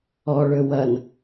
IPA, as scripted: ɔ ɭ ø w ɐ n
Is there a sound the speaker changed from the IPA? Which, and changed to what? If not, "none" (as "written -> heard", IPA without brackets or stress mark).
none